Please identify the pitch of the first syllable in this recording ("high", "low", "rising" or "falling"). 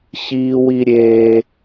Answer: high